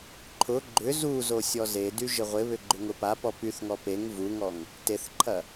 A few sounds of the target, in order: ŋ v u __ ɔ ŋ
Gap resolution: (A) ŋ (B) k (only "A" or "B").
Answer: A